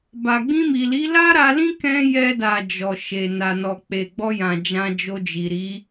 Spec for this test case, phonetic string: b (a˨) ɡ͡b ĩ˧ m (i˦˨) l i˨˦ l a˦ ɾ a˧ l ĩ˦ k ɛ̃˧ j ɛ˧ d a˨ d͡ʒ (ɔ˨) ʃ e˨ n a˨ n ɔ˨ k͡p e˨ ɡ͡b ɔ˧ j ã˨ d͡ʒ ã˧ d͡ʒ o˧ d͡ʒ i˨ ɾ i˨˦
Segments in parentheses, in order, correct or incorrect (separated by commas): correct, incorrect, correct